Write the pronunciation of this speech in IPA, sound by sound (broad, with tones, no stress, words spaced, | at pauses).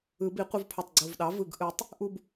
ɯ˨˩˦bi˨˩˦qʷɯ˧vpʰo˨˩tˤ ɡ͡ǀo˨˩vɗɑ˩˥vɯ˨˩ɡ ʔɯ˨˩˦tˤ | ʔu˥˧b